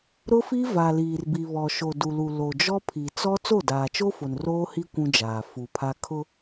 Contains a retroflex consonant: no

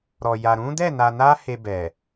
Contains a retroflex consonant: no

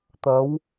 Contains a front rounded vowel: no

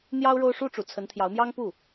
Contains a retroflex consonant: yes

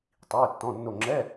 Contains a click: yes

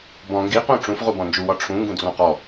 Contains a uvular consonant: yes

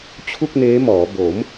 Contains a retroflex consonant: no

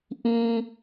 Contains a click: no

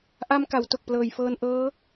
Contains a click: no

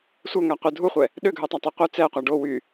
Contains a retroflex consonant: yes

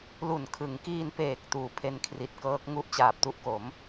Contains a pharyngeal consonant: no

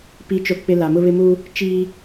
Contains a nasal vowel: no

